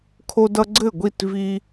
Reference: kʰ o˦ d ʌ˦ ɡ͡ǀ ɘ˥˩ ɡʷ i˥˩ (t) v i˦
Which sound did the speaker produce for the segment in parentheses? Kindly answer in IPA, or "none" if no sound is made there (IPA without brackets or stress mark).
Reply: t